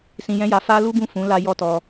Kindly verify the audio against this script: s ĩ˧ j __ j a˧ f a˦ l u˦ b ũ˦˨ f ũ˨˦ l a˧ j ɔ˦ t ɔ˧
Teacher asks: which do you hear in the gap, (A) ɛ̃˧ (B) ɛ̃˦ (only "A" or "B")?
B